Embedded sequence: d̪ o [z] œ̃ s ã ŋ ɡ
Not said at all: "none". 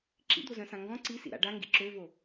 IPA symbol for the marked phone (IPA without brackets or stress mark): z